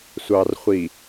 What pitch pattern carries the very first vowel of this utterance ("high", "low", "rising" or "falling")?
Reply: low